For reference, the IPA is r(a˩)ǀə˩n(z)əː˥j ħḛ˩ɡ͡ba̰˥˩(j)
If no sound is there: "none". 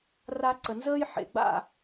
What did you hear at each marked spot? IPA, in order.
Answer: a˧, z, none

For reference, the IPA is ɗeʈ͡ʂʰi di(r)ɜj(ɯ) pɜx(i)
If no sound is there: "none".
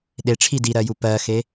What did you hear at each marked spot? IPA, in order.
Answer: ɾ, u, e

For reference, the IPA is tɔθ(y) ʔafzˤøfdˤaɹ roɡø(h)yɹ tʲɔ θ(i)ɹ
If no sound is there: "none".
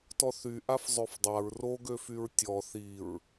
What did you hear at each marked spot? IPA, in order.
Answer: y, f, i

